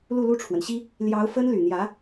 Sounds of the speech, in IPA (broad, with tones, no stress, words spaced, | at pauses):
lu˥˧lu˥˩ʈ͡ʂʰwə˩nɕi˥ | ljɑ˧˥ʊ̯ fə˥n ly˨˩n̪jä˧˥